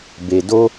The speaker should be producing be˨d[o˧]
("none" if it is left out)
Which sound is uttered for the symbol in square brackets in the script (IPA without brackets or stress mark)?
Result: o˧